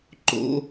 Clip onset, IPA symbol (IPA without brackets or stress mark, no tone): ǃ